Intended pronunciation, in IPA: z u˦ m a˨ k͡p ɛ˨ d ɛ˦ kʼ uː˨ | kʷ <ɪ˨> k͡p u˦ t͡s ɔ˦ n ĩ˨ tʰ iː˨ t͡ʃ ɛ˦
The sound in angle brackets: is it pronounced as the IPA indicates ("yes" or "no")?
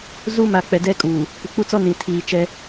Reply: yes